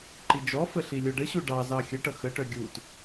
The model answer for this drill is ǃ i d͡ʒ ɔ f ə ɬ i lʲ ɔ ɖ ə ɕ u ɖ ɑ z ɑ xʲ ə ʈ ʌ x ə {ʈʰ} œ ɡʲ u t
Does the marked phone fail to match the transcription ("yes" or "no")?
yes